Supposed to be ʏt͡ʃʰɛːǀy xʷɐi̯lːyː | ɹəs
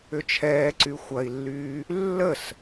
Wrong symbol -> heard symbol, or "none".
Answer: ɹ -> lː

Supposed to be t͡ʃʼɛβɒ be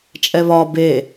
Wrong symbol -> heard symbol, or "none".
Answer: none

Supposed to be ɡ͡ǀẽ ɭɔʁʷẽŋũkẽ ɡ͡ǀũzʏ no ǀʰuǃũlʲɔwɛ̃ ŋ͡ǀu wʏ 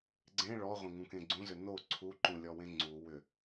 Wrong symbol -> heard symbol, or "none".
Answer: ɛ̃ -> ẽ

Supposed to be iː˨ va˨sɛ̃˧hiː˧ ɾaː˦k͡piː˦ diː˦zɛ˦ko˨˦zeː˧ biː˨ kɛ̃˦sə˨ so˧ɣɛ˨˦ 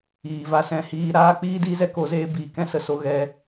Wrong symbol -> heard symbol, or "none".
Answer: none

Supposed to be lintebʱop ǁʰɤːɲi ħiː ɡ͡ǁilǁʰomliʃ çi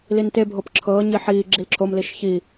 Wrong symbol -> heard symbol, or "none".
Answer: none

